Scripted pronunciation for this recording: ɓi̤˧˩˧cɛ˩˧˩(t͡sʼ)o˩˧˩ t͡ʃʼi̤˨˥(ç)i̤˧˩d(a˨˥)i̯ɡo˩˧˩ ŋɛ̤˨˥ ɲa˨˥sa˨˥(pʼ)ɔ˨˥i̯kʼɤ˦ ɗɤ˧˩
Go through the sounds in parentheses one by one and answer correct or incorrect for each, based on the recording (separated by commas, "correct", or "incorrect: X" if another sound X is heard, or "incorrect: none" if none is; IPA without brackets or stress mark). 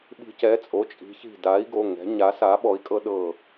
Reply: correct, correct, correct, incorrect: ɓ